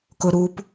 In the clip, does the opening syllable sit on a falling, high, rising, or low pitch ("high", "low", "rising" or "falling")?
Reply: low